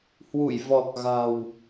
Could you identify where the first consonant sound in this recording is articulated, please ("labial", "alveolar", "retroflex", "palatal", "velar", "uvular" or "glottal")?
glottal